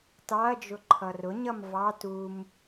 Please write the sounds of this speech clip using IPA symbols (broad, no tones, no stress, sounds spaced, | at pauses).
t ɑ ɐ̯ d͡ʒ ʊ ǃʰ ʌ r ʊ ɲ ʌ m v ɑ t u m